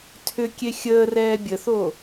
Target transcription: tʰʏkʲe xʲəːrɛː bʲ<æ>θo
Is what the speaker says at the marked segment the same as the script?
no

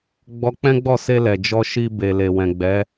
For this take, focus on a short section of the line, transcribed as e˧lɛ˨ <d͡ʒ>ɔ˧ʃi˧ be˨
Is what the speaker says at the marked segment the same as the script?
yes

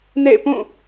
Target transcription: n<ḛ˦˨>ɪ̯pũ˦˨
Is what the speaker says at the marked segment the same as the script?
yes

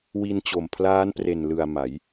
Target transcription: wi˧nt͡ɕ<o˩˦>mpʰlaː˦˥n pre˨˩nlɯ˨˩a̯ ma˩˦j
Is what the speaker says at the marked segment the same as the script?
no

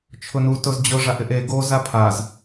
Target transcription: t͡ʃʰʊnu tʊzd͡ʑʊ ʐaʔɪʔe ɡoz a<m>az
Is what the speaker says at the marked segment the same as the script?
no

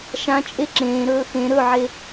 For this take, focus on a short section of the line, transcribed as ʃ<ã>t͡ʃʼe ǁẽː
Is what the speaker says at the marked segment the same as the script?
yes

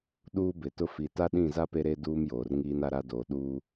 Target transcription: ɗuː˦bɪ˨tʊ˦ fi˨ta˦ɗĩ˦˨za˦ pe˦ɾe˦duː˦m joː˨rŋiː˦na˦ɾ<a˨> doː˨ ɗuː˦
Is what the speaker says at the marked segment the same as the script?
no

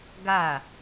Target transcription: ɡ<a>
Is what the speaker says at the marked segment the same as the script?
yes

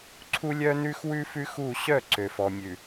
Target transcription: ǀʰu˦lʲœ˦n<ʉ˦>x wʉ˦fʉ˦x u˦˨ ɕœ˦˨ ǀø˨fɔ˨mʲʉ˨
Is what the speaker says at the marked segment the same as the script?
yes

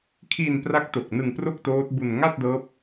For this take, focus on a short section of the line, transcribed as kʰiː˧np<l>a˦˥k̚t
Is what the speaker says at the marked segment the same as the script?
no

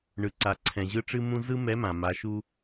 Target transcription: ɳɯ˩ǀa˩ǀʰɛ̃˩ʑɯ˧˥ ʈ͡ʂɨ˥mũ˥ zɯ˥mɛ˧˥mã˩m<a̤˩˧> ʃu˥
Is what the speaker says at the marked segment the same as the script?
no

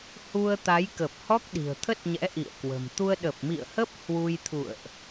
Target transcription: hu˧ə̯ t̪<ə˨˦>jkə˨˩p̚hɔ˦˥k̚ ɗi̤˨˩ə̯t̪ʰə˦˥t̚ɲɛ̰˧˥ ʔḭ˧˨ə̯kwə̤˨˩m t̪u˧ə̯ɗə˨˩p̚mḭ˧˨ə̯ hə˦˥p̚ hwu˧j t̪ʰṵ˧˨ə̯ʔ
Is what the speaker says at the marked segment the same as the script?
no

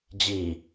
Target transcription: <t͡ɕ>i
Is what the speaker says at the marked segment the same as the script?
no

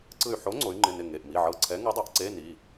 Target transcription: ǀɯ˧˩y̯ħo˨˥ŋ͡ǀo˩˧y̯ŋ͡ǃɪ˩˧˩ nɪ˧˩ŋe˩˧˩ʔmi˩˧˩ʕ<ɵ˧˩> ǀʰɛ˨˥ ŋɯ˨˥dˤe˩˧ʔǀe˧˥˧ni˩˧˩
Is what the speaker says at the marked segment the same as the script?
no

